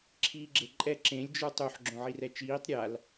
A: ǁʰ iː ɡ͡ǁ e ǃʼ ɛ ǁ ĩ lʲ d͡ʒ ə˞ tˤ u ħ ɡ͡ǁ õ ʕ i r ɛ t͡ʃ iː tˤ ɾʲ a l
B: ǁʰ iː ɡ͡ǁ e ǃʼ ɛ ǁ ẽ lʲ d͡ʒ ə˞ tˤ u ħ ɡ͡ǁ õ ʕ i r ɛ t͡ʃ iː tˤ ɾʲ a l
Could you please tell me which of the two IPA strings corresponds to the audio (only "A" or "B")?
B